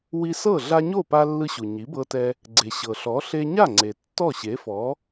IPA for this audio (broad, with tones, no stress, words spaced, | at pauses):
wi˧sɤ˥˩ ɮa˧ɲo˥˩pa˧ lːɯ˧ɕu˩ ɲi˩˥bɤ˧tɛ˧ | ɡ͡ǀe˩ ɕɤ˩ɬɔ˩˥ ɬe˧ɲa˥˩ŋ͡ǀe˩ tːɔ˥˩ɕe˩˥fɔ˩˥